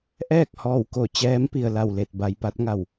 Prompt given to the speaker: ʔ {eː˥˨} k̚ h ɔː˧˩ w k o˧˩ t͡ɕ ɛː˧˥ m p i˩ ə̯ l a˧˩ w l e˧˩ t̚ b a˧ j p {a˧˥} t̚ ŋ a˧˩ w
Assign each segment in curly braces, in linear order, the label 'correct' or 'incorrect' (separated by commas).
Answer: incorrect, correct